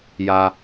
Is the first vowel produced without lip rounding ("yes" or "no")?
yes